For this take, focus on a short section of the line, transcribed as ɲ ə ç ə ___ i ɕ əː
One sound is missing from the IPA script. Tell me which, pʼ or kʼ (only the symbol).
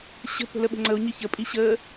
pʼ